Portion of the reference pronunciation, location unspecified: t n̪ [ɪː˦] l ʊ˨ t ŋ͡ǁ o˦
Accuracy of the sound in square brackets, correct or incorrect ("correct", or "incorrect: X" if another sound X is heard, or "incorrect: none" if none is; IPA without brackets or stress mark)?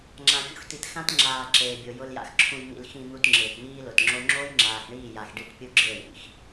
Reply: incorrect: iː˦